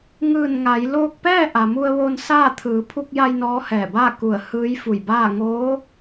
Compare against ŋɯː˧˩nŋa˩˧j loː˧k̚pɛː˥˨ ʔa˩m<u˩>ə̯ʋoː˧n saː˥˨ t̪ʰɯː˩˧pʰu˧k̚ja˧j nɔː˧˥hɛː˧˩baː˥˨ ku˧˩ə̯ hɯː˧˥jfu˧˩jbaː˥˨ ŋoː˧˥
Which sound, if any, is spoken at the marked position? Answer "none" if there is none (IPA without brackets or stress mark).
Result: u˧